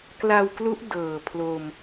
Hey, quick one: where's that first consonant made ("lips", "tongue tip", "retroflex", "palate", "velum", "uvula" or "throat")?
velum